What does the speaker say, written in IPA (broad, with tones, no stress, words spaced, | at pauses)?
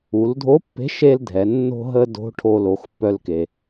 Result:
u˩˧ldʱo˧˥pːe̤˧˥ ʃe˥ldʱɛ˩˧ nːo̤˥ɦə˥ do̤˧˥ ʈʰo˧lo˩˧xpːœ˧lke˩